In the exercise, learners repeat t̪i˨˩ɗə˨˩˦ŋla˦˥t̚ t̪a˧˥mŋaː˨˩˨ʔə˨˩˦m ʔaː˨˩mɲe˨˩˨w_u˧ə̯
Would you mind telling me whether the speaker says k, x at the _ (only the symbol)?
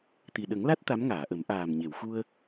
x